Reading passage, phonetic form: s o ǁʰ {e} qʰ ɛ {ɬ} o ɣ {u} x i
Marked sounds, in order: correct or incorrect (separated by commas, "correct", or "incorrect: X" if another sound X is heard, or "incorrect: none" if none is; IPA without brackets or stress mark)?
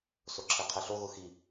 correct, correct, incorrect: ʊ